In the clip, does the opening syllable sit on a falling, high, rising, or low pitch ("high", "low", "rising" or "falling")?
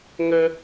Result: high